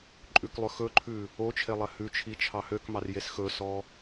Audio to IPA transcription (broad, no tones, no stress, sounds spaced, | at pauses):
ǃʼ ʉ k lˠ ø x ɵ ǃʰ ʉ | o t͡ʃʰ e lˠ ɛ h ʉ t͡ʃʰ i t͡ʃʰ ɑ h ø k m ɑ r j e s x ɵ s ɔ